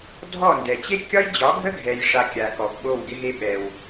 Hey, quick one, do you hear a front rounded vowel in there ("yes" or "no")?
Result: no